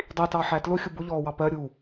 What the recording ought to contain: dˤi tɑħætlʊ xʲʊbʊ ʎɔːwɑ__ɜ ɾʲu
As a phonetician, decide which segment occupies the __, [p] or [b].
p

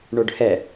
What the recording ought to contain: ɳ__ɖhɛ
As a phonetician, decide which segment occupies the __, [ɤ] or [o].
o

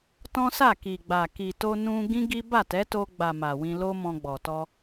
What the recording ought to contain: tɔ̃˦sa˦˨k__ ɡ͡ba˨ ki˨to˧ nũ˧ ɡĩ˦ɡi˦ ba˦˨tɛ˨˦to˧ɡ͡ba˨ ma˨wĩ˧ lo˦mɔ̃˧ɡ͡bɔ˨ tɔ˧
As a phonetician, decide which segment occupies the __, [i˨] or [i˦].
i˨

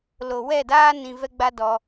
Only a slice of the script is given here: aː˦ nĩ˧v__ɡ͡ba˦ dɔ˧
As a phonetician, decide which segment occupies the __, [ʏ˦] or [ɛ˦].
ɛ˦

